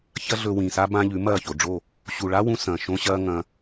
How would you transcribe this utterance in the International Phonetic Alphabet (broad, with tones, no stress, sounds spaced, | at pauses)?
ç ɐ˦ ɮ ɵ˧ w ĩ˨ s a˦ b ã˦ ʎ ʉ˨˦ m ɐː˦˨ ç o˨ ɖ͡ʐ o˦˨ | ɕ u˨ ɭ a˦ w ũ˧ s ɐ̃ː˨ ʃ õ˦ ɕ ɐː˦ ŋ ɐ̃˧